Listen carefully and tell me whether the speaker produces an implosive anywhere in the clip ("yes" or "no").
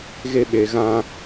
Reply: yes